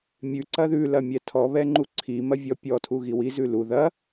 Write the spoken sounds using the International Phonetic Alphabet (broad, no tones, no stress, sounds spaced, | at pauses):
mʲ ʉ ǀ ɐ ð ʉ l ɐ mʲ ɛ tʰ ɔ β ɛ ŋ͡ǃ u ǀʰ i m ɐ vʲ ɔ pʲ ɔ tʰ u ɣ i w i z ʉ l u ð ɐ